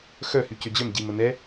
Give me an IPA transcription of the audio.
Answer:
x œ h y c ø d͡ʑ œ m ɟ i m ə n ɛ

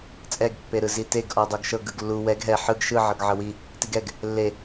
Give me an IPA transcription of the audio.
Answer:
t͡sʼ ɛ ɡ pː e ɾ ɯ z i t e ɡ ʔ ɔ dˤ o ɡ ʃ ɤ ɡ ɯ ɡ lː u w ɛ ɡ ɦ ɛ ħ ɯ ɡ ʃ ɯ ʕ ɤ ɡ ʕ ɤ w i | t i ɡ ɛ ɡ | lː e

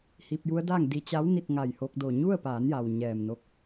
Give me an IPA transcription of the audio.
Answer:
h iː˧ p̚ j u˧˥ ə̯ d aː˥˨ ŋ d i˧ t͡ɕ a˧˥ w n i˥˨ t̚ ŋ a˧˩ j h o˧ k̚ d o˧˩ ɲ u˥˨ ə̯ p aː˩˧ n j a˩ w ɲ ɛː˧˩ m n o˥˨ k̚

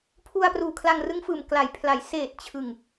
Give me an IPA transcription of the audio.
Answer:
pʰ u˧ a̯ p r uː˨˩ kʰ l a˧ ŋ r ɯ˦˥ ŋ f ɯː˨˩ m k l a˨˩ j pʰ l a˩˦ j s eː˨˩ t̚ t͡ɕʰ ɯ˨˩ ŋ

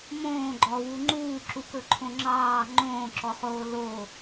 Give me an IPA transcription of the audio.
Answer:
m õː ɡ͡ǃ ɔ w u ŋ͡ǃ uː ǁ u k ɵ ǃʰ õ ŋ͡ǁ ɑː ŋ͡ǃ õː ǁ ɔ χ oː l o

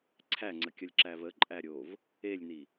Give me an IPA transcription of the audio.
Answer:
ǀʰ æ ŋ͡ǀ ə kʲ ʌ lʲ ǁ æ v ə ǃʼ æ ɾʲ o v | e lʲ n i

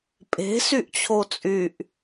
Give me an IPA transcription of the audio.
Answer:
pʼ e̤ s y ʔ t͡ɕʰ o t͡sʼ y ʔ

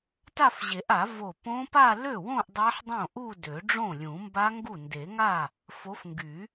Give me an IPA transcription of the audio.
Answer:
t a˥˧ f ʑ e˨˩˦ ʔ a˨˩˦ v o˧˩ p õ˦˥ p a˥˧ l ø˥˩ w õ˥˧ ʔ dˤ a˦˥ ħ dˤ õ˥˩ ʔ u˥˧ d ø˨˩˦ ɖ͡ʐ õ˥˩ lʲ ũ˨˩˦ m b a˦˥ ŋ ɡ u˥˩ n d e˨˩˦ ŋ a˥˩ | f o˨˦ f ŋ ɡ y˨˩˦

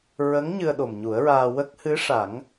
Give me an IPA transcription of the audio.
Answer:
ɹ ə˧˥ ŋ ɲ ɨ˧ ə̯ ɗ o˨˩ m ɲ u˨˩˦ ə̯ ɹ aː˧ w ə˦˥ k̚ h ɨ˧˥ ʂ a˨˩˦ ŋ

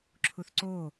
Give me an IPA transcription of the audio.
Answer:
ǁʰ u θ ǀ o

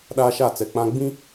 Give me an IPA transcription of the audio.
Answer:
ɗ aː˦ ʃ a˦˨ t͡s ɛ˨ k͡p ã˦ ɡ͡b ĩ˦

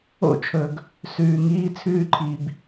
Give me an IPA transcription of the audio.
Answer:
o̰˦˨ t͡ʃʰ ɵ˨ ɡ | s ʉː˨ ŋ iː˦ t͡sʰ ʉː˦ ǃʰ i˨ b

